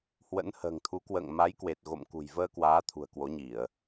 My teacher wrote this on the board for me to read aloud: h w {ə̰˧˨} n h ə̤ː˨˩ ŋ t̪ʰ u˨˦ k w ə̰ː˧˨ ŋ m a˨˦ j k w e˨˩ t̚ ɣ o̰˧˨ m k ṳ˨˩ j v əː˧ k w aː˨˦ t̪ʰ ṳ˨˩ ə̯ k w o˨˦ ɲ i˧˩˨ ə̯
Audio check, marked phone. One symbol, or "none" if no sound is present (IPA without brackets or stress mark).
ə̰˧˥